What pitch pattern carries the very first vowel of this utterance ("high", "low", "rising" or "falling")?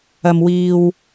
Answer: low